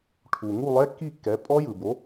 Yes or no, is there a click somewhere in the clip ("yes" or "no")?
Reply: no